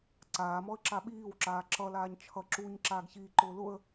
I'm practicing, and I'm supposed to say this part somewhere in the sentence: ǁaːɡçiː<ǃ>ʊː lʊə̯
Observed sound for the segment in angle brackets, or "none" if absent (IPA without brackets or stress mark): ǃ